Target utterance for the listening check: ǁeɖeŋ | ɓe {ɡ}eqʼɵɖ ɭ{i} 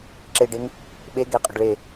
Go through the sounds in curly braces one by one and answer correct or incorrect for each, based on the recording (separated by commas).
correct, incorrect